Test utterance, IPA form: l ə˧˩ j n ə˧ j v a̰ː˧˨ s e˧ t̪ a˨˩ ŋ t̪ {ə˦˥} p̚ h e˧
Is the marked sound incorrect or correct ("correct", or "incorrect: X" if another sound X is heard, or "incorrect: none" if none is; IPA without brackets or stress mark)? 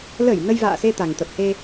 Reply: incorrect: ə˨˩